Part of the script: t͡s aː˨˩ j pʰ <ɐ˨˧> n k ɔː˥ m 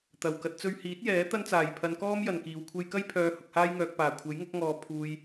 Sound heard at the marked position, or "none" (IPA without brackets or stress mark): ɐ˨˧